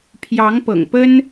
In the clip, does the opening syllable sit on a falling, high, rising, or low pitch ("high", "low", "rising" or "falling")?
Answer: rising